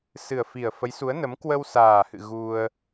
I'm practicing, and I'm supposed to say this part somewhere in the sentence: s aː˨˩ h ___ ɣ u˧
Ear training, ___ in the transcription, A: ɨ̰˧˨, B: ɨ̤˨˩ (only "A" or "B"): A